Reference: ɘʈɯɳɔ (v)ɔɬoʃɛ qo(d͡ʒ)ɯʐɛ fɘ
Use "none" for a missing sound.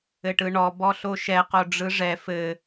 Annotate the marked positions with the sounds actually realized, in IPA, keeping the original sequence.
b, ɖ͡ʐ

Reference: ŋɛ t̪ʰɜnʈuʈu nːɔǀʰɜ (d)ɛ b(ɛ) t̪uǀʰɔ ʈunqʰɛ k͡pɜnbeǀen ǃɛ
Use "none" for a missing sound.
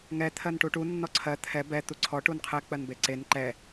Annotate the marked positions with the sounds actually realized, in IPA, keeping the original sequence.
t̪ʰ, ɛ

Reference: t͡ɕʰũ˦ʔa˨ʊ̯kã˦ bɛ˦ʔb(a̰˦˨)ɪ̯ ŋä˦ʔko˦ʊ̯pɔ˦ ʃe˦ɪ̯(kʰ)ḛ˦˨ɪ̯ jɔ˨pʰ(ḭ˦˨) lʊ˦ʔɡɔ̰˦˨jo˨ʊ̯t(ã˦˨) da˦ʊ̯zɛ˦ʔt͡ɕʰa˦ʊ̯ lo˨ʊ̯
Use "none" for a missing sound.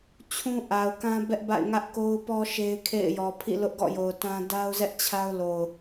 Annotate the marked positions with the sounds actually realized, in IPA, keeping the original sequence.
a̰˦˨, kʰ, ḭ˦˨, ã˦

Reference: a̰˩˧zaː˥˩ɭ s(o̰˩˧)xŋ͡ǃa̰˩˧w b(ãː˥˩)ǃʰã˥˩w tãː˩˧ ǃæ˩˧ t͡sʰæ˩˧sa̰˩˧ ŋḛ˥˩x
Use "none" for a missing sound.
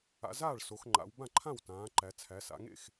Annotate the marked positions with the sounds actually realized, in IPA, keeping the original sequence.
o˩˧, ã˥˩

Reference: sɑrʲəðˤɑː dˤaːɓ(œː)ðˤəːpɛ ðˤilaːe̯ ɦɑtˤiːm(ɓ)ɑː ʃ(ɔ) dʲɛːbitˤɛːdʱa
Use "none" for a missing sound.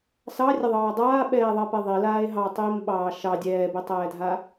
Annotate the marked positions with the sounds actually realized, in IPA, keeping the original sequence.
ɛː, ɓ, ɑ

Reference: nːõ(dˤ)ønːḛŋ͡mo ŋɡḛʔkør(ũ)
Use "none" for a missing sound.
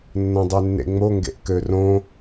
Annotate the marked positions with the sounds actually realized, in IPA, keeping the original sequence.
dˤ, õ

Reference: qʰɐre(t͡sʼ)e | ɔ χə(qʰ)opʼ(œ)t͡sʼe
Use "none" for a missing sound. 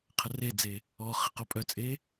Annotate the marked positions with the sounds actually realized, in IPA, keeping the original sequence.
d͡z, q, œ

